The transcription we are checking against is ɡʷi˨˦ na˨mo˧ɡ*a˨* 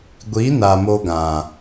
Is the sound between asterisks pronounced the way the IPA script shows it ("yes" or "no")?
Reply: no